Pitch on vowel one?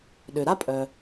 low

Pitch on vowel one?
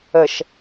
low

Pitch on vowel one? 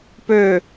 falling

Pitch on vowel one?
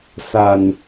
low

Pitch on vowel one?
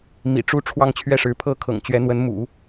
low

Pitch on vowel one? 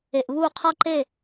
low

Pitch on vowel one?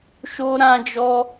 high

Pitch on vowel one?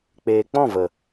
low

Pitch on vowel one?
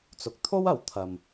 low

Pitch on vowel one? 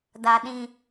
low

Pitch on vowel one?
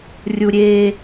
high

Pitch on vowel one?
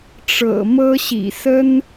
low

